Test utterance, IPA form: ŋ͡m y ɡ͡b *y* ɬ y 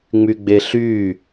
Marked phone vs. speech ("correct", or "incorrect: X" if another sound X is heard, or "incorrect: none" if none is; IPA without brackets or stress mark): incorrect: e